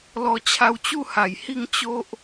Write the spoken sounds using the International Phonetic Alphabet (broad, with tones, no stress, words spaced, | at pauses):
lɔ˧t͡ɕʰa˧wt͡ɕu˥˧ha˨˩j hi˥˧ŋ t͡ɕo˦ʔ